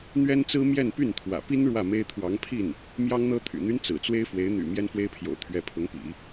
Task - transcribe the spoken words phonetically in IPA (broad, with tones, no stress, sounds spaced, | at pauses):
n̪ ɥ ɛ˥ n t͡s ɹ̩˥ m j ɛ˥˧ n p y˥˩ n t̪ʰ w ä̰˨˩ p i˥ n ɻ w ä˥˩ m e˥ ɪ̯ t̪ʰ w ɑ˧˥ ŋ pʰ i˥˩ n | m j ɑ˥ ŋ n̪ ɤ˥ t̪ʰ y̰˨˩ n̪ y˥ n t͡s ɹ̩˨˩ t͡s w e˥ ɪ̯ f w e˧˥ ɪ̯ n̪ y̰˨˩ m j ɛ˥ n f w e˥ ɪ̯ pʰ j o̰˨˩ ʊ̯ t̪ʰ ɥ ɛ˧˥ pʰ ʊ˧˥ ŋ p ḭ˨˩˦